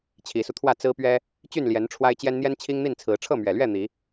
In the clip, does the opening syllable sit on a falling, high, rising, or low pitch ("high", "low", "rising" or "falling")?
rising